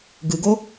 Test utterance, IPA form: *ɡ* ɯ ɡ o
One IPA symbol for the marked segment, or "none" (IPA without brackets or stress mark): ɡ